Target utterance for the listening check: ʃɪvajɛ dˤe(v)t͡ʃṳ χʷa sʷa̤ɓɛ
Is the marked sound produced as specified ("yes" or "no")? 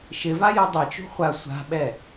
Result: no